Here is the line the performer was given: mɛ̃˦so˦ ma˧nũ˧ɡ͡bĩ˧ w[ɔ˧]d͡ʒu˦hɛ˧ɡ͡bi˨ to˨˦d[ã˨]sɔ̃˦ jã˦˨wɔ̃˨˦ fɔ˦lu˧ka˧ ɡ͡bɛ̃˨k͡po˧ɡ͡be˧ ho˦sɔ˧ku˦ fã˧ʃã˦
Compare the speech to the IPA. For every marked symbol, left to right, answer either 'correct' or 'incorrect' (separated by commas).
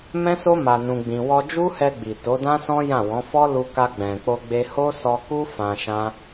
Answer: correct, incorrect